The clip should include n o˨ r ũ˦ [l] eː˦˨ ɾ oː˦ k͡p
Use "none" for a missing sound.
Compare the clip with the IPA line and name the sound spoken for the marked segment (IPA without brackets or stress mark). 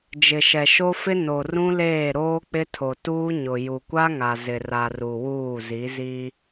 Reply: l